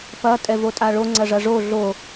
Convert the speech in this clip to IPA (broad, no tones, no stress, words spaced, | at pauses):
pɐ tʼɛvotʼaɭo ŋ͡ǀɐʐɐʐo ɮo